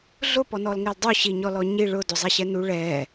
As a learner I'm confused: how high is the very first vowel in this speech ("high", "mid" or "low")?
high